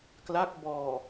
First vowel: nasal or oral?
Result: oral